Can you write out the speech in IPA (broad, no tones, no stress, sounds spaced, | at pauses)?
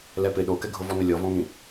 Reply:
l ɛ p ɪ ɗ o k ɛ ɡʱ ʊ v ɔ n ʊ lʲ ɔ v ɔ̃ ŋ ĩ